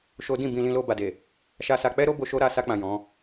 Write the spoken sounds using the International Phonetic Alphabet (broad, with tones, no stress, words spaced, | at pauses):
ʃo˦ dĩ˦˨bĩ˧ lĩ˧lo˧ ba˨de˨ | ʃa˧sa˧ k͡pɛ˦ɾo˦bo˧ ʃo˦ɾa˦˨ sa˧k͡pã˨ jɔ̃˨˦